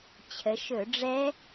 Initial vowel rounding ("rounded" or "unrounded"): unrounded